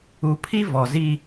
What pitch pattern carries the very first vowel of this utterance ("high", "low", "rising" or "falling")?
low